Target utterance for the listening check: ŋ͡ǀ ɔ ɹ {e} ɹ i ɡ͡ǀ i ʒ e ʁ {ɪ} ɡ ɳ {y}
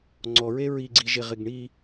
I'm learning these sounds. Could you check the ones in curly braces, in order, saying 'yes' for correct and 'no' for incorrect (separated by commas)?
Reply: yes, yes, no